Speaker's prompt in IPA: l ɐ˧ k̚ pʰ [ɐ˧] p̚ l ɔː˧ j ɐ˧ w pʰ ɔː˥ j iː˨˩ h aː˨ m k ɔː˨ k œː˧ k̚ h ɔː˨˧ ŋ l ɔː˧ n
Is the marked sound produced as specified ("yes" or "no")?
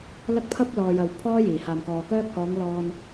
yes